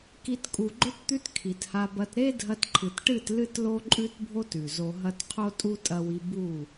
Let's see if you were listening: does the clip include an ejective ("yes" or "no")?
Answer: yes